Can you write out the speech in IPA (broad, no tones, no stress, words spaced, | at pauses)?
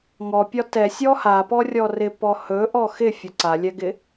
ŋɔpʲɒ tɛ sʲɔhapɔ rʲɔrɪpɔ hɵʔɔ xɪ fʲɒǀalʲɛɡɪ